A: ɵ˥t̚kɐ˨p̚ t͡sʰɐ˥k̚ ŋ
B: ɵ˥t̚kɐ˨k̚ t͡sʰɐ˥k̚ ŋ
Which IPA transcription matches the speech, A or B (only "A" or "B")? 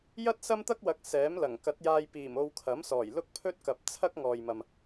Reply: A